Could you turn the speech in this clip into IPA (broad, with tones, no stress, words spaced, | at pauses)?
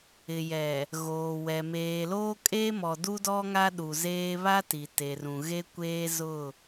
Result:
ɪ˨jɛ˨ | ɣoː˨wɛ˨ meː˨loː˦kʼe˦mɔ˨ du˦dɔ˦ŋa˦ɗu˨ zeː˦ βa˦ti˨te˨rũ˨ ɣe˦kʷeː˦ zʊ˦˨